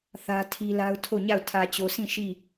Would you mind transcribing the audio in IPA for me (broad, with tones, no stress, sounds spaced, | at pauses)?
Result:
θ ä˦ tʰ i˦ l a˦ ʊ̯ tʰ o˦˨ ɲ a˦˨ ʊ̯ tʰ ä˨ t͡ɕ o˨ s ĩ˦˨ ʃ i˦˨